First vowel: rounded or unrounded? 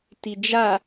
unrounded